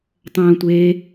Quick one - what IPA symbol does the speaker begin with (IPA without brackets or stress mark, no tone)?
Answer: tˤ